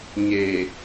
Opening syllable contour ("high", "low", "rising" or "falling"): low